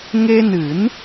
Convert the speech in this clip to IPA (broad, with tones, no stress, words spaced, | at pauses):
ŋe˧nɨ˨˩˦n